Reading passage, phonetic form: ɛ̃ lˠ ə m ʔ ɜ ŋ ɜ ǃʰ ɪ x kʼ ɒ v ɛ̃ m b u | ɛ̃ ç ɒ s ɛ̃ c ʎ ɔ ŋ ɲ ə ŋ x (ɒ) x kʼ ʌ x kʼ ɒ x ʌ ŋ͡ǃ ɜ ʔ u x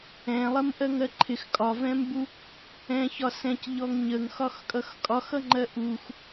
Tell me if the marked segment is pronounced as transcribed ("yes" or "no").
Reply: yes